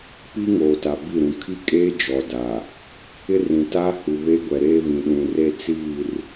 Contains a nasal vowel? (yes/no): yes